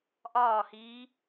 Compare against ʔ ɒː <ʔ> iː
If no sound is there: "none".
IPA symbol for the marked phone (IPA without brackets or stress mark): h